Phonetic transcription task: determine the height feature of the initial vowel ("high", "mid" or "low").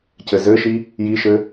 mid